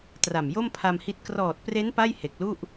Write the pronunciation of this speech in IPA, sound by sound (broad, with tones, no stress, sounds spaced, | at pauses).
t r a˨˩ m j o˥˩ m pʰ a˧ m h i˦˥ t̚ k r ɔː˨˩ t̚ p r e˦˥ n p a˥˩ j h e˨˩ k̚ l u˥˩ ʔ